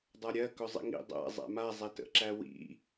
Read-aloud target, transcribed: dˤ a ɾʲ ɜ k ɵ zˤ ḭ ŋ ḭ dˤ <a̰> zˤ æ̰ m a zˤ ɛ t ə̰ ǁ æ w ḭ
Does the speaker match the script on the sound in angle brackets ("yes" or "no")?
no